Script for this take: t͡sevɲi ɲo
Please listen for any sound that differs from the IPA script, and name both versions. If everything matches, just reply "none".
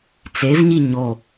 none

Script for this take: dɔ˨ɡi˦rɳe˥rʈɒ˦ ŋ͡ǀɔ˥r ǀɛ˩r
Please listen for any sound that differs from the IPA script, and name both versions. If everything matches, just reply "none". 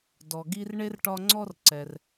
none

